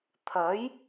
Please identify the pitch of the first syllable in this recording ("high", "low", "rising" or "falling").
rising